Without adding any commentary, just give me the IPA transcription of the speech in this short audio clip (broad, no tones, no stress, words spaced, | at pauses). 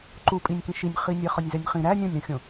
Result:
ǃupʼinʲkĩ ʃinʲχinʲe χɒnʲzænʲχĩ ɾæ nʲõnʲɾũxʲõ